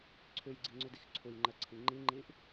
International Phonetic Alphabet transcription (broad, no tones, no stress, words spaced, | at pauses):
ǀʰʉjɡ͡ǀiŋ͡ǀʉdix ǀʰujŋ͡ǃɜǀʰĩ ŋ͡ǃiŋ͡ǃiʔ